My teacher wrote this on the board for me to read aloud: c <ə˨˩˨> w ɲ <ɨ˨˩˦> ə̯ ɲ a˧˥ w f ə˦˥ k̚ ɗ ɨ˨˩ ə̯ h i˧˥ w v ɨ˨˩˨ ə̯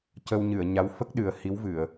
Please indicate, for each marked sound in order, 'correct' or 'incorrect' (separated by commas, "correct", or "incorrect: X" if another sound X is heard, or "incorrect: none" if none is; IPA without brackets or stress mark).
incorrect: ə˧, incorrect: ɨ˨˩˨